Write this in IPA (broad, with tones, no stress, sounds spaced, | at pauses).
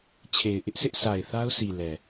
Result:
t͡ɕʰ e˨ ɪ̯ ʔ ɪ˦ ʔ sʰ ɪ˦ ʔ sʰ a˨ ɪ̯ θ a˦ ʊ̯ s i˨ l ɛ˨